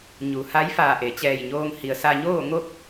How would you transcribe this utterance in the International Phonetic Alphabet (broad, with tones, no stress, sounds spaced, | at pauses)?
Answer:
ɲ u˩ h a˧˥ j f aː˧˩ ʔ e˩ t͡ɕ ɛː˧˩ j ɲ oː˧ ŋ h i˩ ə̯ s a˧ ɲ oː˥˨ ŋ o˥˨ k̚